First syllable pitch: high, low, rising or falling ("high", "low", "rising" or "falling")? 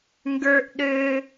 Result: high